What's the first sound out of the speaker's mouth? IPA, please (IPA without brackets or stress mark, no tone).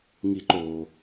ŋ